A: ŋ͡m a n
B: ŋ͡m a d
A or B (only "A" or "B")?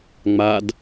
B